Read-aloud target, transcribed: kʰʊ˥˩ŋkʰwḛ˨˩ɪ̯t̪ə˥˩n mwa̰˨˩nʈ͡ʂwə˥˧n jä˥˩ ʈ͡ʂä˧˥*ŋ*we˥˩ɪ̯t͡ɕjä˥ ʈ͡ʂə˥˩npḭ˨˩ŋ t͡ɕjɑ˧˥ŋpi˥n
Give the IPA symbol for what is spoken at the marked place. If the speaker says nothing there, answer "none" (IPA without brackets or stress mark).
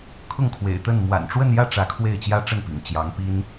kʰ